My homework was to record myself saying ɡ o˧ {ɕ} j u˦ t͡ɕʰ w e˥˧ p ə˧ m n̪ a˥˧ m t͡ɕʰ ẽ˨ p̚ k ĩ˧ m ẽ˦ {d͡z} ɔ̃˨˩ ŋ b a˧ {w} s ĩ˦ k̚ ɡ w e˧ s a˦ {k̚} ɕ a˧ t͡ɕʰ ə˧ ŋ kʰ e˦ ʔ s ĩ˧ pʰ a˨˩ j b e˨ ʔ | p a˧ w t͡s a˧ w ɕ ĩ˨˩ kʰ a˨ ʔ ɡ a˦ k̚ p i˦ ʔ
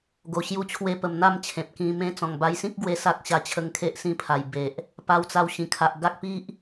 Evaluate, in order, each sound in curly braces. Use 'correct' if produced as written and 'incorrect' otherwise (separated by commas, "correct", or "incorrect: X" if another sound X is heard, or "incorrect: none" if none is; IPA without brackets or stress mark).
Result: correct, incorrect: t͡s, incorrect: j, correct